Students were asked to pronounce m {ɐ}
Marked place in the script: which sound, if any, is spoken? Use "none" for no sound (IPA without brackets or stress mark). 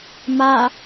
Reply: a